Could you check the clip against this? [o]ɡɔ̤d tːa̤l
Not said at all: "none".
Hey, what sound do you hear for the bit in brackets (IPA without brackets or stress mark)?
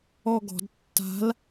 ɔ